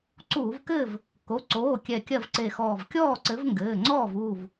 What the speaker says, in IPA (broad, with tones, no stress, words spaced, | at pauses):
ǀuː˧˩˧vkɘː˥˨v | ko˩˧˩ǀoː˩˧˩ kʲɛ˧˩kʲɐ˥˨vǀe˧˩xɔː˧˩v kʲɔː˥˨ǀɘ˨˥vŋɡɘː˩˧˩ŋ͡ǀɔː˥˨v uː˧˩v